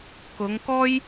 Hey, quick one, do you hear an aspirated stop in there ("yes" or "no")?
no